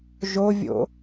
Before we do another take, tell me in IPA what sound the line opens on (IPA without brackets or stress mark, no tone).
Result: ʒ